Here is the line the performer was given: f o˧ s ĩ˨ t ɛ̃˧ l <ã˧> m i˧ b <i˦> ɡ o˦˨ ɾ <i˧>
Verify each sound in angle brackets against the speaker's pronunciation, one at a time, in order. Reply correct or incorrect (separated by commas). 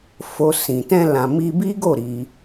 incorrect, correct, correct